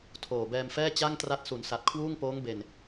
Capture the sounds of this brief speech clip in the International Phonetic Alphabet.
tʰ oː˨˩ b ɛː˧ m f ɛː˥˩ t͡ɕ a˥˩ ŋ t r a˦˥ t̚ s u˩˦ n s a˨˩ t̚ kʰ w uː˥˩ ŋ p oː˦˥ ŋ b e˨˩ n

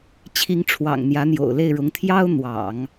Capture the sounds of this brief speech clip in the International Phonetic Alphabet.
t͡ɕʰ i˧˥ ŋ ʈ͡ʂʰ w ɑ̰˨˩ ŋ n̪ j ä˧˥ n̪ j o̰˨˩ ʊ̯ l e˥˩ ɪ̯ ɻ ʊ˧˥ ŋ t̪ʰ j ɑ˥ ʊ̯ n̪ w ɑ̰˨˩˦ ŋ

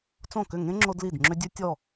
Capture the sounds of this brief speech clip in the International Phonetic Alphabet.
t͡s õ˥˩ k ʏ˥˩ ŋ ẽ˥ ŋ͡ǁ o˥ d l i˥˩ d ŋ͡ǁ ʏ˥ dʲ ʉ˥ tʲ ɔ˥˩

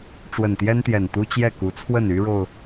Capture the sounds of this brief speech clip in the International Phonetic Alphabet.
ʈ͡ʂ w ə˨˩ n t̪ j ɛ˦ n t̪ j ɛ˨˩ n t̪ u˦ t͡ɕ j ɛ˥˨ k u˨˦ t͡sʰ w ə˥˨ n y˦ ɻ o˨ ʊ̯

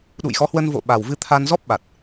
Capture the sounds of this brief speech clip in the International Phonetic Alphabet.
ɗ ṵ˧˨ j x ɔ˨˦ h w ə˧ n v o̰˧˨ ɓ a˨˩ w v ɨ˧ t̪ʰ a˧ n z ɔ˦˥ p̚ ɓ a˨˩ t̚

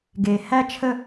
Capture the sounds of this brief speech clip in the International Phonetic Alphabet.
ɡ e˨ h æ˦ t͡ʃʰ ə˦˨

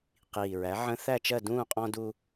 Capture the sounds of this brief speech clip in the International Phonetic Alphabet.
q iː˨˩ ɹ æ˩˥ ʕ ə̃˦ θ æ˥˨ t͡ʃ ɜ˥˨ d ũː˥˨ qʼ ɔ̃˦ d u˦

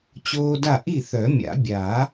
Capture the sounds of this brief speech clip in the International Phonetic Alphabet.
t͡ɕ oː˦ d a˥˩ ʔ i˥˩ θ œ˨˩˦ mʲ a̰˨˩˦ bʲ a˨˩˦

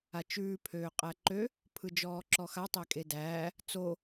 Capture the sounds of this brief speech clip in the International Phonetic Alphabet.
a t͡ʃ ʉː pʰ øː qʼ æ ǃ ø | pʰ ɯ d͡ʒ ɔː ǁ ɔ x a tˤ æ kʼ e d æː | t͡s o

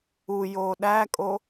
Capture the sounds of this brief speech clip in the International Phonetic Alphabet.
u j oː ɗ æ kʼ o

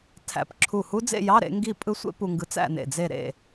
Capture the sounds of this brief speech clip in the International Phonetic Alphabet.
tʰ æ̰˧˩ p ǁʰ u˧˩ h u˦˥ d͡z ḛ˥˧ j ɑ˧˥˧ ɾ ḛ˨˥ ŋ ɡ i˥˧ pʼ ɯ˦˥ sʷ ḛ˦˥ p u˧ ŋ ɡ ɯ˨˥ t͡s æ̰˥˧ n ḛ˧˩ d͡z e˥˧ ɾ ḛ˥˧

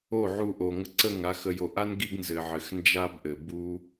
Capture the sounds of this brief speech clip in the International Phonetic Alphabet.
o˦˨ ʕ u˧ ʔ o˨ ŋ ə˧ ǀ ə˦˨ ŋ a˧ x ə˨ j o˨ ʔ a˦ n ɡ i˦ ɡ n z ɘ˨ ʕ ɘ˨ x n d͡ʒ a˦ b ʔ ɘ˨ b u˦

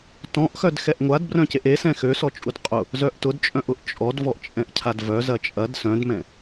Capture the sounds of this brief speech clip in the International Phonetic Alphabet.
t ɔ̃ ʔ x œ d x ɛ ʔ ŋʷ a d b r œ̃ c e ʔ e s ɛ̃ x ø s ɔ t͡ʃʼ u d qʼ ʊ | z œ ʔ t ʊ d t͡ʃʼ œ̃ ʔ ʊ ʔ t͡ʃʼ ɔ d v ɔ ʔ t͡ʃʼ ɛ̃ ʔ cʰ a d v œ z ɐ t͡ʃʼ ɐ d s œ̃ d m ɛ̃

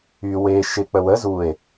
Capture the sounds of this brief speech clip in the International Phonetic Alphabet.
y w e ʃ ɪ k͡p ə w ə z u e̯

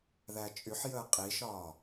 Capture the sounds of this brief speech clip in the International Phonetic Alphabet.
ð æ t͡ʃʼ y ħ j əː qʼ i ʃ ɒː

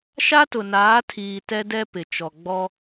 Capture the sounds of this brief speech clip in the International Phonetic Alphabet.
ʃ a˦ t ʊ˨ n aː˨˦ tʰ iː˨ t ɛ˦ d ɛ˦ p ɪ˨ t͡ʃ ɔ˨ ɡ͡b ɔ˦

